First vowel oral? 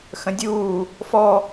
no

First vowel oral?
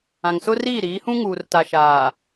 no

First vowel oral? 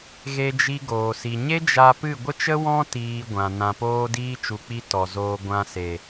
yes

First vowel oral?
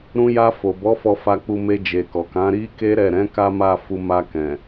no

